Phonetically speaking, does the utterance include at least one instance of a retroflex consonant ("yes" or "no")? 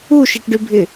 yes